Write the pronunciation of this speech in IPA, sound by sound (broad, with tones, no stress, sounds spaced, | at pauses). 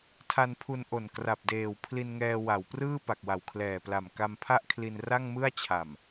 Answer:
tʰ a˧ n pʰ u˧ n ʔ o˨˩ n k r a˨˩ p̚ d eː˨˩ w pʰ l i˧ n ŋ ɛː˧ w a˩˦ w p r ɯː˥˩ p a˨˩ k̚ w a˨˩ w kʰ l ɛː˨˩ p l a˨˩ m k a˧ m pʰ a˥˩ ʔ kʰ l i˧ n r a˥˩ ŋ m ɯ˥˩ a̯ t͡ɕʰ a˨˩ m